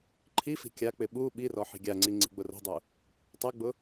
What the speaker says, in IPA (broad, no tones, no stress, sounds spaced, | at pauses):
ǃʰ i f i̤ kʲ a k͡p ɪ ɓ u ɓ i r ɔ ħ i̤ ɡʲ a ŋ͡ǀ i ŋ͡ǀ i̤ ɡ͡b ʊ r o̤ dˤ u | tˤ ɛ ɡ͡b ʊ